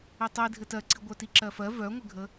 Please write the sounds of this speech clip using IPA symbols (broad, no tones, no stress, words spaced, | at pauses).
itˤi dʱɘtɜǀi ɡʷœtiǁɜfɜ vœŋʷɘɡʱə